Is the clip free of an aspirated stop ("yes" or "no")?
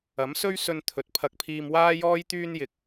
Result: no